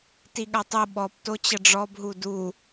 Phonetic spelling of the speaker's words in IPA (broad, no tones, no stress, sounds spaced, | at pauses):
t i ɠ a tˤ o ɓ ɔ p t o t͡ɕ ə ɖ͡ʐ ɔ b ɦ u d u